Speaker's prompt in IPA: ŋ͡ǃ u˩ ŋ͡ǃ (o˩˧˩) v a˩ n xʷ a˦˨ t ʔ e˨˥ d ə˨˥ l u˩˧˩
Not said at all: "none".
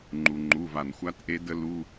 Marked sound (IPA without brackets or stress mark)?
u˩˧˩